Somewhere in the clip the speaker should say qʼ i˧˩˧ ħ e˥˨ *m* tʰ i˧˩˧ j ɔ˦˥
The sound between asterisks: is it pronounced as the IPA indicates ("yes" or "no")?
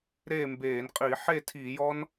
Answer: no